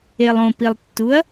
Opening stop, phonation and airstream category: plain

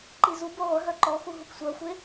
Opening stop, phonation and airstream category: click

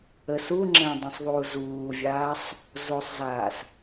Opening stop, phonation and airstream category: click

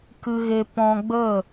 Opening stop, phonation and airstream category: plain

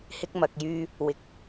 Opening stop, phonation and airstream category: plain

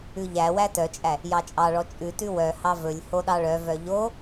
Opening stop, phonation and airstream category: plain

